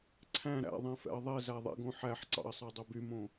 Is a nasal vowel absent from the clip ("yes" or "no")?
no